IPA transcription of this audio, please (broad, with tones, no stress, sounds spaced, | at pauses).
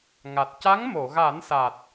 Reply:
ŋ a˨˩ t̚ c a˧˥ ŋ m o˨˩˨ ɣ a˨˩˦ n s a˨˩ t̚